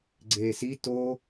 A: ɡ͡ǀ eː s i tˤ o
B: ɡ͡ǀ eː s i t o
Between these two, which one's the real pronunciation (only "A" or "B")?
B